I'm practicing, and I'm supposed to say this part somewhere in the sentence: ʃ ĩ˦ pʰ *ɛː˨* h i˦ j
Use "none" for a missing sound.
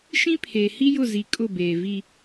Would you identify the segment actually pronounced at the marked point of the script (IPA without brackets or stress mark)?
eː˨